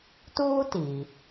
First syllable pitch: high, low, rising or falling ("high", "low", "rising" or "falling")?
high